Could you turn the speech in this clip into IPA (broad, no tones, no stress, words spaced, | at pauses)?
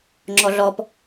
ŋ͡ǁɔɮɔp